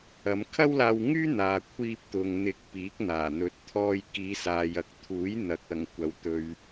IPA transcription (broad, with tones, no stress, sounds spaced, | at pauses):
ɐ˨˧ m kʰ ɐ˥ w l aː˧ w ŋ yː˥ n̪ aː˨ kʷʰ iː˧ p̚ t̪ ʊ˨ ŋ n̪ ɪ˨˥ k̚ p iː˨˥ k̚ n̪ aː˨˩ n̪ ɵ˨˥ t̚ t̪ʰ ɔː˧ j k iː˨˧ s aː˨ j ɐ˨ k̚ t̪ʰ uː˨˥ j n̪ ɐ˨ k̚ ɐ˨˩ ŋ kʷ ɐ˨ w t̪ ɵ˨ ɥ